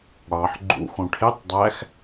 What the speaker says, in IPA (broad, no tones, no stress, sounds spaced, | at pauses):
ɽ ɑ ħ ɡ͡ǃ ṵ x õ ʈʰ e tˤ dˤ æ x